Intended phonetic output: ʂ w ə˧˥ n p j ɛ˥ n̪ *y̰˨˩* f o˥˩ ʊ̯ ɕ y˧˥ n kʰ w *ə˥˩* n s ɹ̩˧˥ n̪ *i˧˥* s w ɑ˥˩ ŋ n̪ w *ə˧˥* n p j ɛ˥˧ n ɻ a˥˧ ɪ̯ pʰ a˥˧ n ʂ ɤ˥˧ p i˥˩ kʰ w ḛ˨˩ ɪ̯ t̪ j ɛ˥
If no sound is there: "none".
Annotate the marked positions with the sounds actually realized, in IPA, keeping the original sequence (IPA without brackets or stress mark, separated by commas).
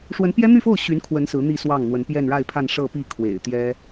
y˥˧, ə˧˥, i˥˧, ə˧˥